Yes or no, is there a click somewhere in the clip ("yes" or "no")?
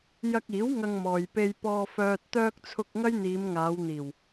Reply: no